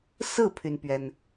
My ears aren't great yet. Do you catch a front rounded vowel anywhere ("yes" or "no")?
yes